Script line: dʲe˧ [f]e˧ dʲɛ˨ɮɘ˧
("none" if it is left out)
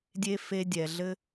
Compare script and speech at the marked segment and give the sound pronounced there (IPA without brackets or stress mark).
f